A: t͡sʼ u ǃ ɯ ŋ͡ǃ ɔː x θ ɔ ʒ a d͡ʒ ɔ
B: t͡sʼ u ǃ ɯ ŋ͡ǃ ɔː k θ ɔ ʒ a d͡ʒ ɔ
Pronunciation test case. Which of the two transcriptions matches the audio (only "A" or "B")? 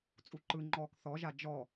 B